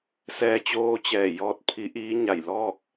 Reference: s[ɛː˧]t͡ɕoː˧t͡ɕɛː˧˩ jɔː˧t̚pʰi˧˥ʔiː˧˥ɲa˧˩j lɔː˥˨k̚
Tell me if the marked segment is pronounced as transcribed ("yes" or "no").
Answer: yes